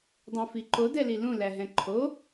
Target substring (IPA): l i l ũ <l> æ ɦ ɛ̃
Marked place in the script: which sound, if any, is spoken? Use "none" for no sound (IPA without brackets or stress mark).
l